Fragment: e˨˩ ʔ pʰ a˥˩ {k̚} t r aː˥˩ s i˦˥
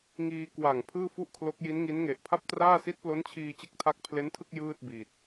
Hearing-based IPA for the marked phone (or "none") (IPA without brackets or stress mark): p̚